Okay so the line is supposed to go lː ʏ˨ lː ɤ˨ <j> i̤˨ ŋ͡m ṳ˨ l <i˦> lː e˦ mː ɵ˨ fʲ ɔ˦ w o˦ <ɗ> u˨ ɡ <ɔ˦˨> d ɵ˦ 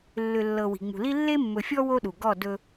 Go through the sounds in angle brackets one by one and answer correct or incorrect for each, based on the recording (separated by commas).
incorrect, correct, correct, correct